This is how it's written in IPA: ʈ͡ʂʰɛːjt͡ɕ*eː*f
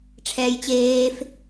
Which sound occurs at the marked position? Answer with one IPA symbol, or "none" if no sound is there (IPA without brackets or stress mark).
eː